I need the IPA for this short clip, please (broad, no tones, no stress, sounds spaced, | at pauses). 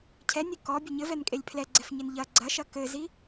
cʰ ɛ nʲ ɨ k ɔ bʲ ɘ ɲ ɘ v ɛ n kʼ e lʲ pʰ l ɛ ɡ͡ǀ ɛ f ɲ e n ʎ ɐ ɡ͡ǀ ɐ ʃ ɐ k ɘ z i